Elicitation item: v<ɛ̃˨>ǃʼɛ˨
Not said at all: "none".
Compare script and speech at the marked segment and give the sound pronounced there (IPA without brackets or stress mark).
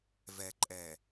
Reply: ɛ˨